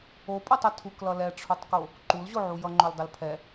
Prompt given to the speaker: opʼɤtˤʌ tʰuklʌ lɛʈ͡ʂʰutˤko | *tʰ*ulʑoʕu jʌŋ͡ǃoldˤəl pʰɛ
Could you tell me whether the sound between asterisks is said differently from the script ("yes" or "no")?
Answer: yes